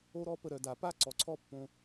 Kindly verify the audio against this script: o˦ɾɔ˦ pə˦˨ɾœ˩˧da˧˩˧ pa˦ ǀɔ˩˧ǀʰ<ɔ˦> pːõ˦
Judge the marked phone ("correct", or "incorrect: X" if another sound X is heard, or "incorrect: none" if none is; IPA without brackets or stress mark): correct